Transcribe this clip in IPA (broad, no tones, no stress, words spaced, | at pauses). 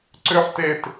ǀʏħ tet